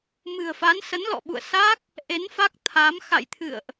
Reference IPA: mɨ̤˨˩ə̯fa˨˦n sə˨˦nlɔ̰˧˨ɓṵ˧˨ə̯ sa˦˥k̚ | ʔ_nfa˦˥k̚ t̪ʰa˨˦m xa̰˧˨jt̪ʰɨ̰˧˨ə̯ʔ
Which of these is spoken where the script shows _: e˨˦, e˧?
e˨˦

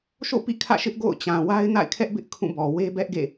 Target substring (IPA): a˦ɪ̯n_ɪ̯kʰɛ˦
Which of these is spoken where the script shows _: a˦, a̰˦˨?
a̰˦˨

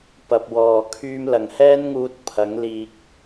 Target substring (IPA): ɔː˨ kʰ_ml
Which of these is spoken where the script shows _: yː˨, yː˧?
yː˧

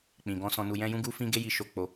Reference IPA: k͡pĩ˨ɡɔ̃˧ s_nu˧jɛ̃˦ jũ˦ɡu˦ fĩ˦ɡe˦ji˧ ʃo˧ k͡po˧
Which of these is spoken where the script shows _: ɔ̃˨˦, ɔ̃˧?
ɔ̃˧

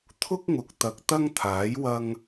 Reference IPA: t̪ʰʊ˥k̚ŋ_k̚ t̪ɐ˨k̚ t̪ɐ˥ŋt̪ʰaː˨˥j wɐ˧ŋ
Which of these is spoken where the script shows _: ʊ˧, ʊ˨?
ʊ˨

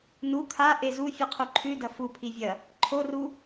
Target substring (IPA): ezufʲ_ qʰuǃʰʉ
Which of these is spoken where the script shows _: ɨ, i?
ɨ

